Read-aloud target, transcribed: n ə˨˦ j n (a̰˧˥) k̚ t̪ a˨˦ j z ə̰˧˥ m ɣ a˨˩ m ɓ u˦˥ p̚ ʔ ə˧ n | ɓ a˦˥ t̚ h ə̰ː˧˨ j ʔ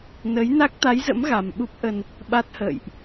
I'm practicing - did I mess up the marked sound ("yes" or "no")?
yes